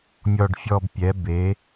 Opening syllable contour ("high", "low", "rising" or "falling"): low